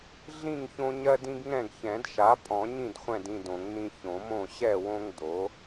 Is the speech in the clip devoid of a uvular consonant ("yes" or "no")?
no